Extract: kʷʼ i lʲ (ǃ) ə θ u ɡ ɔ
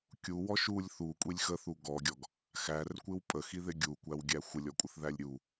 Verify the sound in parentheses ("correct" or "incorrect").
incorrect